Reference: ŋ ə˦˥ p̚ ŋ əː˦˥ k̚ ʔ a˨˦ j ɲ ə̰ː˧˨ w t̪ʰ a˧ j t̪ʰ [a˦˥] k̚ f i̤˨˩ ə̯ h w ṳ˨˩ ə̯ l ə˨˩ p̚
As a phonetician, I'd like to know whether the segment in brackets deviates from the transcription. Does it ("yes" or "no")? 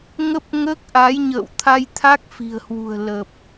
no